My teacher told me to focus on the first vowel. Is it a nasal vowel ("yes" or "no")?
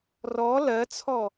no